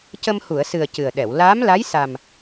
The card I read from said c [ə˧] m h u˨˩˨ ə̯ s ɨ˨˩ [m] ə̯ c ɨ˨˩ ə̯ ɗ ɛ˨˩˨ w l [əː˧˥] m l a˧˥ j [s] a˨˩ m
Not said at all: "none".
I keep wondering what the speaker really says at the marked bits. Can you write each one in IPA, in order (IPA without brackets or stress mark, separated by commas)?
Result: ə˧, none, aː˧˥, s